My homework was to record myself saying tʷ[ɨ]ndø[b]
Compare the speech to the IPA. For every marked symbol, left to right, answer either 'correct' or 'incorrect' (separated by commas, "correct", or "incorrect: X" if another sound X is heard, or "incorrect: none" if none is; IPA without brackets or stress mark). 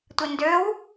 incorrect: i, incorrect: w